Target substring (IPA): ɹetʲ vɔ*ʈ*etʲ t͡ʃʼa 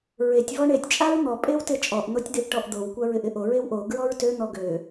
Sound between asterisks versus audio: incorrect: ɳ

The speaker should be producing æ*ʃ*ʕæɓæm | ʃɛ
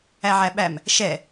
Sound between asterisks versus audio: incorrect: none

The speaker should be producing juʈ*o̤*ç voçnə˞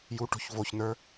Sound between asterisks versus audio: correct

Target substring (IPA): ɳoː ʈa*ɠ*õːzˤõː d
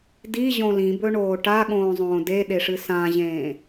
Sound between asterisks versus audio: correct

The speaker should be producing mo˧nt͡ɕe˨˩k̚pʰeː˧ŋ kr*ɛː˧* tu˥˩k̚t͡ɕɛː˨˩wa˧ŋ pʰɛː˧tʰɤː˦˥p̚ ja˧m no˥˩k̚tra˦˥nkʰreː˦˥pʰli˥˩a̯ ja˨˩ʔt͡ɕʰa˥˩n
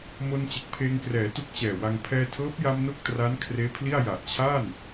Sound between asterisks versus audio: incorrect: ɛː˩˦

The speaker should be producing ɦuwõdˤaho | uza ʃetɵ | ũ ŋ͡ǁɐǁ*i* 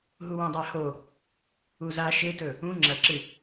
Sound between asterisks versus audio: incorrect: ɨ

